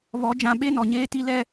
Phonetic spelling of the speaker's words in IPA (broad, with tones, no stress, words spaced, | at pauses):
βɔ˨˦ d͡ʒã˨ ɓe˦nɔ˨ɲeː˦ti˦ lɛ˦